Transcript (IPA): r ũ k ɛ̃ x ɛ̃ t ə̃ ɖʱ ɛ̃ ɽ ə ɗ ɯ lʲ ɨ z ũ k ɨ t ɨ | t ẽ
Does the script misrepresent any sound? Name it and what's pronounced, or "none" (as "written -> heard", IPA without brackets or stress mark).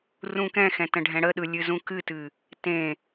none